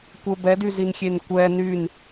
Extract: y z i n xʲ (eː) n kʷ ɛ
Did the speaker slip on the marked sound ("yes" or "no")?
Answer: yes